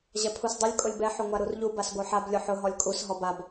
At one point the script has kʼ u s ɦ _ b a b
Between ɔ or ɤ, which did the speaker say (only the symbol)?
ɔ